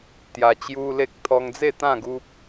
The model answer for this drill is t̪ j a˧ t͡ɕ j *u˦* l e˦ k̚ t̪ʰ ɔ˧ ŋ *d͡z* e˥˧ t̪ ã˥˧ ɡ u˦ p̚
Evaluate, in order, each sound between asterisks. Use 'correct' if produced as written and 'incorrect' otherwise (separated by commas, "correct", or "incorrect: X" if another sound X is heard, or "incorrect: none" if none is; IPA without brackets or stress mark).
correct, correct